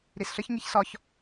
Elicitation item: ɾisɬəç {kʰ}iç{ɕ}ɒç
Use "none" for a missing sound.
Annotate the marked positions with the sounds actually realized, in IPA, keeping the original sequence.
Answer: ŋ, s

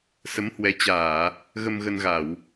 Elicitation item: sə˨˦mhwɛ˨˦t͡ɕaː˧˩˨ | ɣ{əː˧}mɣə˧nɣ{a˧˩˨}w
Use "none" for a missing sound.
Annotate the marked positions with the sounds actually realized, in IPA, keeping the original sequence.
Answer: ə˧, a˧˩˨

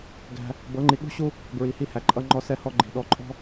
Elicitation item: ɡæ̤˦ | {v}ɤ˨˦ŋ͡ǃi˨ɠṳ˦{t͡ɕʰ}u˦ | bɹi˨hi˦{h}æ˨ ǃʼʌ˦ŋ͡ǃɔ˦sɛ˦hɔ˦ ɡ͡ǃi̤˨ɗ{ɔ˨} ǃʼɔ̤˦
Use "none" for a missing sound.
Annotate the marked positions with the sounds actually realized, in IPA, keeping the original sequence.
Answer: b, ɕ, h, ɔ˨

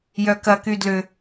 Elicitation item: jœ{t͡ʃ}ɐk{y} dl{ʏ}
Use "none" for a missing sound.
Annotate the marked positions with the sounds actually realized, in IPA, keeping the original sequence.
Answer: k, y, ʏ

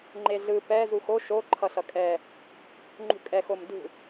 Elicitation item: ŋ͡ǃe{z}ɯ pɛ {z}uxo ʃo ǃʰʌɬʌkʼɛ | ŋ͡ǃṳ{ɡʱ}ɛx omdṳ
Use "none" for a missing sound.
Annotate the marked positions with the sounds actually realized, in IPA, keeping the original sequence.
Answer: ɮ, z, kʼ

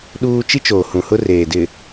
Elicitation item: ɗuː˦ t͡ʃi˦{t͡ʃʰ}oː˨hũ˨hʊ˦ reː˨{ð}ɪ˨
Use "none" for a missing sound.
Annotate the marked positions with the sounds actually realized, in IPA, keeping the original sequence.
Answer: t͡ʃ, d

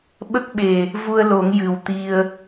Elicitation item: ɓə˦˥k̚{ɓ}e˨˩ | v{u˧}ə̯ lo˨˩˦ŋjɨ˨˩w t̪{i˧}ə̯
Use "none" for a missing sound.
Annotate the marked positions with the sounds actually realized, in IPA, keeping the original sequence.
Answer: ɓ, u˧, i˧

